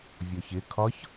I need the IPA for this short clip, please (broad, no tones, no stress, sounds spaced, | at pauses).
vʲ ɔ ç ɪ kʰ ɒ ç